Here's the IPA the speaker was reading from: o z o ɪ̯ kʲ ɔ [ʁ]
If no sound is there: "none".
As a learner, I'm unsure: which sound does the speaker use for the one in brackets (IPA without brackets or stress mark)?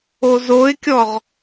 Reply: ʁ